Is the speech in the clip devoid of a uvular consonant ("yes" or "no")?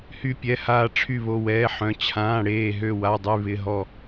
yes